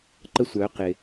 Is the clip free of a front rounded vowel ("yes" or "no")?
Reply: no